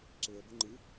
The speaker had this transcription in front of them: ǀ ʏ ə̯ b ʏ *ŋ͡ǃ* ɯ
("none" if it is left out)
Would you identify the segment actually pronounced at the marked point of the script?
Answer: ŋ͡ǃ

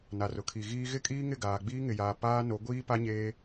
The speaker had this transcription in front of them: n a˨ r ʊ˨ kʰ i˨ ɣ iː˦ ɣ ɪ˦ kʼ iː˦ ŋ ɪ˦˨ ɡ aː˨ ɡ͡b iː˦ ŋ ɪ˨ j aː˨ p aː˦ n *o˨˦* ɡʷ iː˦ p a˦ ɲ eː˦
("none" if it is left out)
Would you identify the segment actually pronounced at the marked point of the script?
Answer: o˨˦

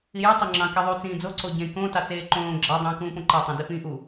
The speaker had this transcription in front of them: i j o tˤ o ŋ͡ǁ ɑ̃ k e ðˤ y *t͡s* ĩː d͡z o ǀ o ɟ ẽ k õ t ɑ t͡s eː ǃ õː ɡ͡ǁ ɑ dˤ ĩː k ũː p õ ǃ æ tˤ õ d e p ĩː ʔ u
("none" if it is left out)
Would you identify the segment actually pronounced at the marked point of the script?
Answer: t͡s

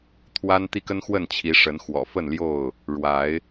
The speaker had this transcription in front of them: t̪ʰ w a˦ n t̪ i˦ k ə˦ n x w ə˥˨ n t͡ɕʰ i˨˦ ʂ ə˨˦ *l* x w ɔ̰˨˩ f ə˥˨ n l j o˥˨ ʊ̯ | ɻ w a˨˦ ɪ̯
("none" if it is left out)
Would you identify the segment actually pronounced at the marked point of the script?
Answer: n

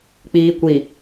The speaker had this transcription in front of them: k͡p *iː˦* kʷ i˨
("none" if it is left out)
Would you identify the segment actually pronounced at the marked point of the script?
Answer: iː˨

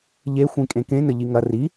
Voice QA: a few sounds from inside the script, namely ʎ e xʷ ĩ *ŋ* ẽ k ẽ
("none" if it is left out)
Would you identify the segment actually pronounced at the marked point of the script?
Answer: kʼ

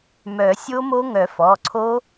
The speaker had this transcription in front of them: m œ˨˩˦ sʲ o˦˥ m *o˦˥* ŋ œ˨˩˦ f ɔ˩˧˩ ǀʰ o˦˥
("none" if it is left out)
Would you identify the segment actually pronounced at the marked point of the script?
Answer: o˦˥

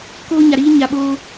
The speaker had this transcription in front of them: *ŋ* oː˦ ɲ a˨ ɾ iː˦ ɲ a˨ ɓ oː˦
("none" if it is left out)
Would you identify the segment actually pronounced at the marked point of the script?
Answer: k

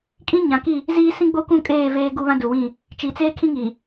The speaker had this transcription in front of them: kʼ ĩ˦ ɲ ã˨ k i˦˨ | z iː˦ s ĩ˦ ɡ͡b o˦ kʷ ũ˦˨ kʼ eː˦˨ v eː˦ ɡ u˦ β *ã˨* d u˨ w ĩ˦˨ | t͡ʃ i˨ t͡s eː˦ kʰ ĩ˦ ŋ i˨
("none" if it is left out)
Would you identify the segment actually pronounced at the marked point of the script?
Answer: ã˦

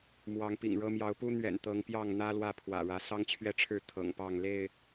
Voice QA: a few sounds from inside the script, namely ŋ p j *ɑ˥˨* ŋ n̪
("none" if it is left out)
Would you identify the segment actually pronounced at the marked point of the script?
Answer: ɑ˥˨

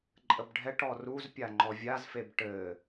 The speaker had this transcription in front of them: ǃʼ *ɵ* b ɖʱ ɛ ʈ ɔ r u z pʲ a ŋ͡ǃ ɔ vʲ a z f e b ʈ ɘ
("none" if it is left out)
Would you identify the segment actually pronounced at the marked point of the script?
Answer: ə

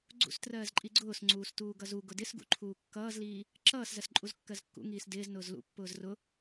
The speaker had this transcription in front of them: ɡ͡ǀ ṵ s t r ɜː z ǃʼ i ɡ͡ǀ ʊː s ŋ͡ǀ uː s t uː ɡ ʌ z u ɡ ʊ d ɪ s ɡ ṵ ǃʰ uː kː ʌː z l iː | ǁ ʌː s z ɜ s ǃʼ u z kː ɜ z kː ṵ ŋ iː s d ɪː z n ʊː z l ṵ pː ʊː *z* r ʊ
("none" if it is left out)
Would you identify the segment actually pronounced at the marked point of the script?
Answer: z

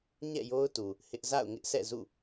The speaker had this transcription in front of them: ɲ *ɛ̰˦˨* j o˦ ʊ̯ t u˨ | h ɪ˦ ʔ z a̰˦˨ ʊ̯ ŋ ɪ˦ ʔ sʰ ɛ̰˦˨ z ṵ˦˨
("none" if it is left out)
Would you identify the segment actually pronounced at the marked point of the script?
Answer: ɛ̰˦˨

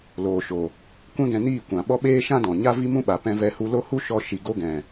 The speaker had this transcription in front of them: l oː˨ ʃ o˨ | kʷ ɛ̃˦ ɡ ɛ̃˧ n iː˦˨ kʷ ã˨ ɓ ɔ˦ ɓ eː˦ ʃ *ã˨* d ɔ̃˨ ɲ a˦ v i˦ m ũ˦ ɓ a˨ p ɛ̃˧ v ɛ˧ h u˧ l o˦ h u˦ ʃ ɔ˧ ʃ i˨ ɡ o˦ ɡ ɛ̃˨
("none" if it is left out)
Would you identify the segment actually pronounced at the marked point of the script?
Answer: ã˦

